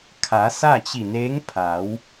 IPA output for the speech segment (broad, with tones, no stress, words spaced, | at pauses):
kʰa˩˧ sa˥˨t͡ɕi˧˩neː˧˥ŋ pʰa˩˧w